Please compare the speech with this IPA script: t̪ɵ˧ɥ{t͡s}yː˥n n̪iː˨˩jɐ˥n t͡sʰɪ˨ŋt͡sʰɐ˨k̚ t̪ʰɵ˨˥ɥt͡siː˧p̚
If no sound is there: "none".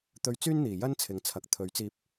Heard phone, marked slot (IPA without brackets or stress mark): t͡s